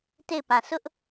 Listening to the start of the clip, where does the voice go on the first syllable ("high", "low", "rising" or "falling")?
falling